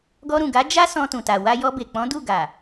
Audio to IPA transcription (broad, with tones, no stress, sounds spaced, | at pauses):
ɡ ɔ˧ ɾ ũ˨ ɡ a˨˦ d͡ʒ a˦ s ɔ̃˧ t ũ˨ t a˨ w a˧ j ɔ˧ b e˨ k͡p ɔ̃˨˦ d u˦˨ ɡ a˨